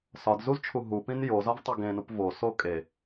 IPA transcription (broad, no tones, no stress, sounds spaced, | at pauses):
s ɒ d z u z t͡ʃʰ u ɦ u p ĩ n j o z ɒ v tˤ u ɡ ẽ n u p v o s o kʼ e